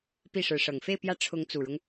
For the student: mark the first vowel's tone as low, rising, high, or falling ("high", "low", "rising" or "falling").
falling